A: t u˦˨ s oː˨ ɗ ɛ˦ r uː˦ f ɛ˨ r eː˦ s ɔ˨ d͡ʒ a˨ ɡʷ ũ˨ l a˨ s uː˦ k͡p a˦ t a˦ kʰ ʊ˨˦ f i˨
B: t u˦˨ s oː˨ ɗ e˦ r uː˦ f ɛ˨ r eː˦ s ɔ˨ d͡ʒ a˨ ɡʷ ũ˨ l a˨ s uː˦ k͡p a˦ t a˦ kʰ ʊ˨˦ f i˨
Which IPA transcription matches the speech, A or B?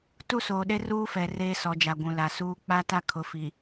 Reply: B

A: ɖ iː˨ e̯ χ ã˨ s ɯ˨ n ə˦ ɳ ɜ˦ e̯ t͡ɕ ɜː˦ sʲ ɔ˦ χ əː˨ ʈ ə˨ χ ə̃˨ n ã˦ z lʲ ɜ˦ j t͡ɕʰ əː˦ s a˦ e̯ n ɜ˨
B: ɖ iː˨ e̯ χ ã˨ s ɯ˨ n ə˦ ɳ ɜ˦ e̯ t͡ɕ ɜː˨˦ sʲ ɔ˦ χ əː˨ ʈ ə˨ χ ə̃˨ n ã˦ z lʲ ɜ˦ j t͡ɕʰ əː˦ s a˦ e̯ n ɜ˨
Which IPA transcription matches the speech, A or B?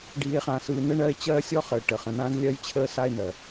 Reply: A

